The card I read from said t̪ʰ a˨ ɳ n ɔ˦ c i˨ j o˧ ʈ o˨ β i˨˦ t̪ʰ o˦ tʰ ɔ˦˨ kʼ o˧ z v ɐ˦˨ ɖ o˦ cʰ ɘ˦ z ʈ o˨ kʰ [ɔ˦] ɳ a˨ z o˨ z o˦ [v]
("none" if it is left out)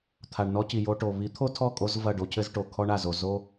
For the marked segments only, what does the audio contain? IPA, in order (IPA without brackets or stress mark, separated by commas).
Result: ɔ˦, none